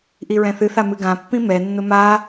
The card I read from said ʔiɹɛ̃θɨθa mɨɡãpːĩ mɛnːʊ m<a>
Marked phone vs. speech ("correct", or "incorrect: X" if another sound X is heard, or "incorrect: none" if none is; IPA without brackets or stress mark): correct